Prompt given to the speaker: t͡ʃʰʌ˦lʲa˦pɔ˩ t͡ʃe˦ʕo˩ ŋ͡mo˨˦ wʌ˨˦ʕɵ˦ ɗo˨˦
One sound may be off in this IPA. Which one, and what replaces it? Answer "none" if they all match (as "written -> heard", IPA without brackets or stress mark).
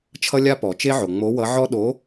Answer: ɵ˦ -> ɔ˦